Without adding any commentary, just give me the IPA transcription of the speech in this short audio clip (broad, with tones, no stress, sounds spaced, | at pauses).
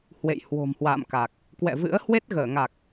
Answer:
h w ḛ˧˨ j h w o̤˨˩ m h w a̰ː˧˨ m k a˨˩ k̚ | k w ɛ̰˧˨ v ɨ̰˧˥ ə̯ h w e˦˥ t̚ ɣ əː˧˩ ŋ a˨˩ k̚